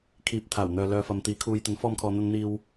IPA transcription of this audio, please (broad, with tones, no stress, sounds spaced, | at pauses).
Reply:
kʰ iː˨ p̚ t̪ʰ aː˨˩ w n̪ œː˨ l œː˨ f ɐ˨ m t̪ iː˨˥ kʰ uː˨ j t̪ ɐ˨˥ n f ɔː˧ m kʰ ɔː˨ n̪ ɐ˧ n n̪ iː˧ w